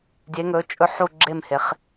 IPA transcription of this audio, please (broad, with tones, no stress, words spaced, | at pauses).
dʲe˧˥ŋɵ˧˥ t͡ʃʼɵ˥˧ ħu˥˧ɡ͡ǁe˥˧m he˧˥χ